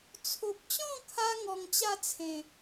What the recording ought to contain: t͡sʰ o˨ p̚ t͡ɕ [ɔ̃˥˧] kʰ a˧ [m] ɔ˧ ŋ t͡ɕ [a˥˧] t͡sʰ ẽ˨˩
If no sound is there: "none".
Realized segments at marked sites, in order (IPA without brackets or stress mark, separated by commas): ɔ̃˥˧, ŋ, a˥˧